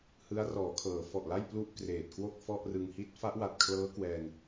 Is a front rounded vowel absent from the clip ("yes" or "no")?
yes